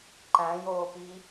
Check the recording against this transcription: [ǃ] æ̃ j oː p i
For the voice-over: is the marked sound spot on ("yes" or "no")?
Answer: yes